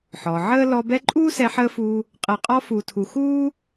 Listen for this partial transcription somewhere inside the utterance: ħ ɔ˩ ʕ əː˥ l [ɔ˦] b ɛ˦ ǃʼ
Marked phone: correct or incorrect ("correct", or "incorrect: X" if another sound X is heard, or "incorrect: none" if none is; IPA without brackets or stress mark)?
correct